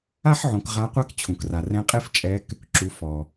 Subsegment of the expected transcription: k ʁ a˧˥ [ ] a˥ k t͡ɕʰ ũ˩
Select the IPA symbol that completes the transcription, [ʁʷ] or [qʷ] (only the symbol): qʷ